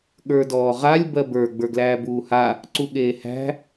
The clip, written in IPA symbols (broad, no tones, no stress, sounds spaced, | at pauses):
ɠ ə˞ d ɔː ʁ a lʲ b ɜ b ə˞ ɡ͡b ə˞ ɡ l æː b uː h a | ǀ u ɠ eː h æ̤